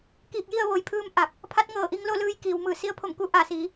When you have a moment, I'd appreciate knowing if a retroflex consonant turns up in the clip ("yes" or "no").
no